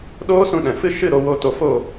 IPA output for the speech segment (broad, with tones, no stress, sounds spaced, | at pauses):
ɗ oː˦ s ũ˧ ɗ ɛ̃˨ f ɨ˦ ʃ ɨ˦˨ ɾ o˧ w o˧ t o˧ f o˦˨